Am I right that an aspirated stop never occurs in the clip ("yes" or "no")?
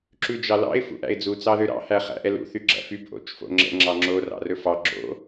yes